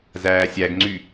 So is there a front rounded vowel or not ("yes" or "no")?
yes